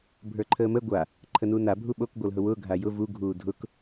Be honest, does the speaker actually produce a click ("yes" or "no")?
yes